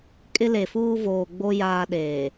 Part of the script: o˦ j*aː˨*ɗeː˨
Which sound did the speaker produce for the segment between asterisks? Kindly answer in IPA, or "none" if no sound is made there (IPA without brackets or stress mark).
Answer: aː˦